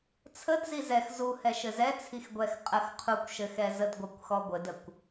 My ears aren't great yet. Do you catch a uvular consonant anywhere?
yes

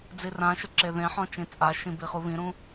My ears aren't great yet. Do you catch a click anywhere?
yes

